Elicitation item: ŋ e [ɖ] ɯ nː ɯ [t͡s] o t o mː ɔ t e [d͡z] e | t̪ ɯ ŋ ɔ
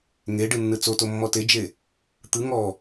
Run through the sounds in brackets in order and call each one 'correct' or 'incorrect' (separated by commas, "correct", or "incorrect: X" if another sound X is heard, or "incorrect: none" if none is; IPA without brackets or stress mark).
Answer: correct, correct, incorrect: d͡ʒ